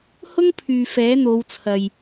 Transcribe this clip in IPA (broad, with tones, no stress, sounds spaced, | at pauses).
h ʊ˥ ŋ pʰ yː˨ f ɛː˨˥ n̪ o˨˧ w t͡sʰ ɐ˨ j